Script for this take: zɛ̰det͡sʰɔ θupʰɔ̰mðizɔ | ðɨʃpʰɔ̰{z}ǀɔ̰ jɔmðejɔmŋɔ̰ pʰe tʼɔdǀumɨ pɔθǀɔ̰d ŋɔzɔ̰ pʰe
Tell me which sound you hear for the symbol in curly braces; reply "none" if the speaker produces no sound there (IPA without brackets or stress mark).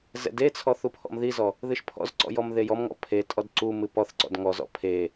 z